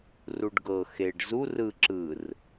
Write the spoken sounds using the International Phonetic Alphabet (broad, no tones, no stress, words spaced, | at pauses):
ruɖɡɤ xeɖ zur ɯ ǁɯr